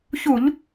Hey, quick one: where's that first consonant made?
palate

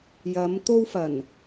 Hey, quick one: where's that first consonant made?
palate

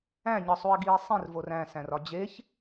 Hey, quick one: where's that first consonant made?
palate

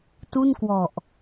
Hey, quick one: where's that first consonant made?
tongue tip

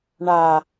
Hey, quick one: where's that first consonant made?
retroflex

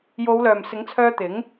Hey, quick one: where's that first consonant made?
palate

